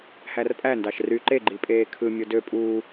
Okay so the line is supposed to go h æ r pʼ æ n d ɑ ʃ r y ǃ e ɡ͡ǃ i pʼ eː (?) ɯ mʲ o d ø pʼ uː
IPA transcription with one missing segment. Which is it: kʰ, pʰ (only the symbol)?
kʰ